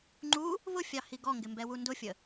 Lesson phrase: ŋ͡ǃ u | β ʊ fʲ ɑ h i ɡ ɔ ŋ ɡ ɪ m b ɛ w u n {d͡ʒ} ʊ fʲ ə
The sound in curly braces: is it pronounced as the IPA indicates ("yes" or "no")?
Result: no